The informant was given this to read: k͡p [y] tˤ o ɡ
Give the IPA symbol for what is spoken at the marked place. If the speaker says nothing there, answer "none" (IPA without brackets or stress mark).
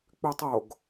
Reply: y